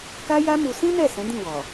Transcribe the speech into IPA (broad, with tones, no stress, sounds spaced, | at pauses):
k a˦ j a˦ m u˧ s ĩ˦ n ɛ˦˨ s ɛ̃˨˦ d ĩ˦˨ w ɔ˨